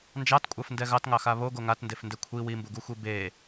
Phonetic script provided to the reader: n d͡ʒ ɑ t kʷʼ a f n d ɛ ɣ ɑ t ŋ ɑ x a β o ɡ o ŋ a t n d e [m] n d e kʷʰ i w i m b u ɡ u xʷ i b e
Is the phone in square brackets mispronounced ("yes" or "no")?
yes